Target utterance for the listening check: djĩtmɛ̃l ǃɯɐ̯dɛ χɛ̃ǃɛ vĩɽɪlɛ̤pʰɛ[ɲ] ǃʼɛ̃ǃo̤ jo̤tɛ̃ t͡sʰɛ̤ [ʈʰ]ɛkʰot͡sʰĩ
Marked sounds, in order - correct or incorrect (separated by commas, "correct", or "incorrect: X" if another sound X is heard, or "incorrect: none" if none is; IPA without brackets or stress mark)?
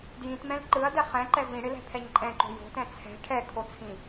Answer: correct, correct